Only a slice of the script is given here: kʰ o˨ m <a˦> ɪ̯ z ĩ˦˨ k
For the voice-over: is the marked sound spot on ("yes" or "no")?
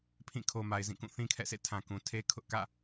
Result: no